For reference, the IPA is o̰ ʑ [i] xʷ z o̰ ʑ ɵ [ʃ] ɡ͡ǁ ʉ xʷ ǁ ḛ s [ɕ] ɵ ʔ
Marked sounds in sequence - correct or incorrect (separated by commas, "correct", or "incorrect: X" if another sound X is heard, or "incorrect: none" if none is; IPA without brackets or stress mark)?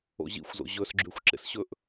incorrect: ḭ, incorrect: s, correct